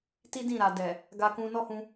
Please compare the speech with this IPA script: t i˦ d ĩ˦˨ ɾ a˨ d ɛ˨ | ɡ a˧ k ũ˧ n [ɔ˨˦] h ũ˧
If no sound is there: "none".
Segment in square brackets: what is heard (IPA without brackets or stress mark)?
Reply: ɔ˦